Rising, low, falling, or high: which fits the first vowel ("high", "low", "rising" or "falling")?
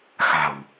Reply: low